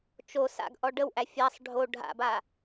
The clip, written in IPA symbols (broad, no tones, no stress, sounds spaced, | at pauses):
t͡ʃ o s a̰ ɡ ʔ ɔ ɖ ə w ʔ æ fʲ a sˤ ɖʱ o ɖʱ a̰ b a